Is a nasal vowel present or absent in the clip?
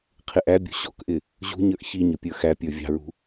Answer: absent